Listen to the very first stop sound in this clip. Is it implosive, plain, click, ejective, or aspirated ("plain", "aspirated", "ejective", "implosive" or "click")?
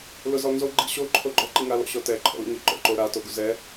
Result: click